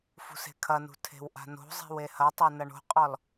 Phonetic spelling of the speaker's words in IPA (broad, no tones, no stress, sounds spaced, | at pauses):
f ṳ s e̤ kʰ ɐ n ṳ tʰ e̤ w ʔ a̤ n o̤ zˤ e̤ w e h ɐ tˤ e n ɐ ɳ o̤ qʼ ɔ l